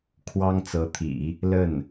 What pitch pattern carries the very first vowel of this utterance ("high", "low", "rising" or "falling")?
high